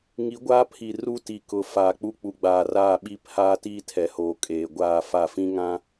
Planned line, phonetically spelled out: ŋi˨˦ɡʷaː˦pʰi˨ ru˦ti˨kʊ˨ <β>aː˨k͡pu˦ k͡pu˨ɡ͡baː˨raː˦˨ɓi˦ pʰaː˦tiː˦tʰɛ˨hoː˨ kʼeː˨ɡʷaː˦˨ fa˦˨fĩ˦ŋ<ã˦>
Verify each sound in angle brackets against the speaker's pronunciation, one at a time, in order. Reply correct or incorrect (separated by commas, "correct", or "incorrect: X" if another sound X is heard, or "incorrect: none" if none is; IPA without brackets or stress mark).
incorrect: f, correct